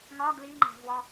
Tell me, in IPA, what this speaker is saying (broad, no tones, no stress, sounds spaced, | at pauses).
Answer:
ŋ ɒ ɡ l i ŋ͡ǃ æ̤ v w ɒ